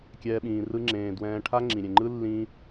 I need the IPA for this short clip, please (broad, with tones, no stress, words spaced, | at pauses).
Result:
kʲɛː˦ɓĩː˧rɯ˦ŋ͡ǁẽː˧ dwɛ̃ː˧ʈʰa˦ ŋ͡ǁĩ˨ɾʲẽ˨ŋ͡ǃɯ˦ lːĩː˧